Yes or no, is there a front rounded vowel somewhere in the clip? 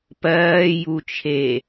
no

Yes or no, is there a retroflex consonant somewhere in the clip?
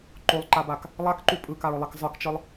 no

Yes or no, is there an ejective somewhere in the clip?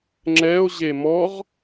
no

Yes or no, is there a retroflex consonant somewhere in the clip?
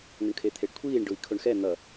yes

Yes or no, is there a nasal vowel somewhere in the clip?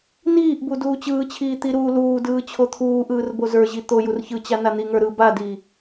no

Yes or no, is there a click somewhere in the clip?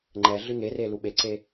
yes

